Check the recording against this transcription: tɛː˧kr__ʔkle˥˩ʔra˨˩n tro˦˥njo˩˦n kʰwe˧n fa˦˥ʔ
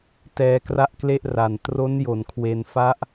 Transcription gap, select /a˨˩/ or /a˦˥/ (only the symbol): a˦˥